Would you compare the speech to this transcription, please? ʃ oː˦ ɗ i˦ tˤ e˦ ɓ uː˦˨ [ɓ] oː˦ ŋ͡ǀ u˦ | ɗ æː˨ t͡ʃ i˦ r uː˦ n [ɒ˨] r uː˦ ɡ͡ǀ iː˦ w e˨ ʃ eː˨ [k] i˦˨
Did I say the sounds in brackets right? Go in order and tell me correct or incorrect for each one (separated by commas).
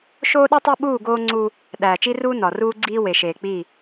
incorrect, correct, incorrect